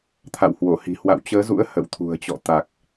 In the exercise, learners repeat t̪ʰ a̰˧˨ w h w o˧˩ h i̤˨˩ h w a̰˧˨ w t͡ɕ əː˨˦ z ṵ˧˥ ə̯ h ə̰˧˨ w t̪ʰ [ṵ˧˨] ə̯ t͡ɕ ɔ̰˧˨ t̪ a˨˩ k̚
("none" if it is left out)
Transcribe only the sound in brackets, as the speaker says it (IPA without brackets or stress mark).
ṳ˨˩